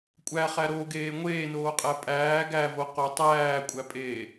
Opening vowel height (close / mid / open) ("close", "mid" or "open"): open